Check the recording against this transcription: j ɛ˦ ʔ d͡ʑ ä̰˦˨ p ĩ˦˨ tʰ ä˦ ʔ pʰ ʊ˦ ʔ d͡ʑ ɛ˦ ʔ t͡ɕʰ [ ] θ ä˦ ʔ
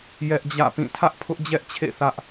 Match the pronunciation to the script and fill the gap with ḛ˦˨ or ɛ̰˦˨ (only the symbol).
ḛ˦˨